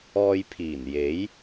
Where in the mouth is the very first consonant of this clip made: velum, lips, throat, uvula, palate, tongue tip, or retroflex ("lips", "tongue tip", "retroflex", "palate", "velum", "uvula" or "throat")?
palate